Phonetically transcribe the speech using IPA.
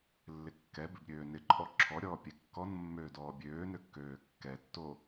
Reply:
lːɪkːɛbɪb ɾʲøːnɪǃʼɔ ǁʰɔɾʲɔː pʲɛkːɔnmːøː dɔːbʲøːnø kːøːkːɛtːoː

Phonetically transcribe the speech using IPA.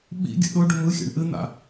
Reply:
ɓḭɡʲə̰ ɗʊ ɖʊmɯxʲa̰ɳ ʔɨn̪a̰

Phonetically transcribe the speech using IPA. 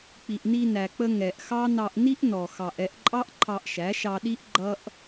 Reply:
k͡pi˨ʔni˧næ˨k͡pə˧ ŋɛ˨ʔxɑ˦ nɑ˧ʔni˦ʔnɔ˨ xɑ˨ʔɛ˧ʔǃʼɑ˦ʔ ǃʰɑ˧ʔʃæ˨˦ʃɑ˧ɗi˦ʔ ɡ͡ǃʌ˦ʔ

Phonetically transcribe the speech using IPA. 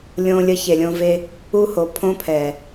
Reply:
lʲõ˧lʲə˧ çe˨lʲõ˧ve˧ | u˧ho˨ pʰõ˦pʰɛ˨

